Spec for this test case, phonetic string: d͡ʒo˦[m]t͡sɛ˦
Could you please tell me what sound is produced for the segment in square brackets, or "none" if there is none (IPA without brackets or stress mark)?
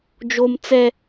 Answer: m